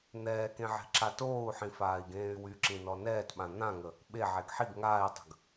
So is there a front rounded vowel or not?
yes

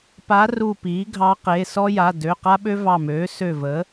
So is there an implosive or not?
yes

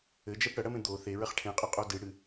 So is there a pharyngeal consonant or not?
no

